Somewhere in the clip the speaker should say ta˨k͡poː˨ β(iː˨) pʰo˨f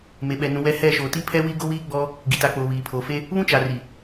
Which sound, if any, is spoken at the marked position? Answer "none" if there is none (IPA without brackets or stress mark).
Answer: iː˨